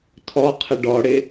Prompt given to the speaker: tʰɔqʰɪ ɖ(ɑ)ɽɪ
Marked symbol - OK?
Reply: no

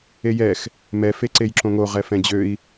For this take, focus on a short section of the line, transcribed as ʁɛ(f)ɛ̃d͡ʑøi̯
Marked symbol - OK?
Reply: yes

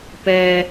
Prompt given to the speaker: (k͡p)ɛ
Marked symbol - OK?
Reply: no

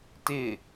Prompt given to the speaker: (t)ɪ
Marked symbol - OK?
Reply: yes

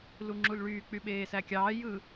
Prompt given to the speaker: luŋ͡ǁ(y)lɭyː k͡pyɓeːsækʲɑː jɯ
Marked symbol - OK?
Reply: no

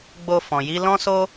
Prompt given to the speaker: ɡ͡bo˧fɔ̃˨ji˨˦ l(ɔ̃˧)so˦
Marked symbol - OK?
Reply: no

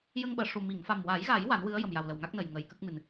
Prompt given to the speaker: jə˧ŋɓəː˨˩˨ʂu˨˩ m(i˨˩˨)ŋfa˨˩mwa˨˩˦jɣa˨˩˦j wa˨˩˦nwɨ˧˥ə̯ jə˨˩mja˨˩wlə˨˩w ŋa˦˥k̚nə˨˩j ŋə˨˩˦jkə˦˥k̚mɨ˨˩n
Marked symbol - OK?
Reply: yes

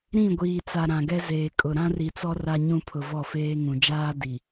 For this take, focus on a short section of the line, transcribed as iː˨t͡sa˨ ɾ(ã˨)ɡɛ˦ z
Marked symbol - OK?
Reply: yes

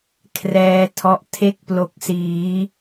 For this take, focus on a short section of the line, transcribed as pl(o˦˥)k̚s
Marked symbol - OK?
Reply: yes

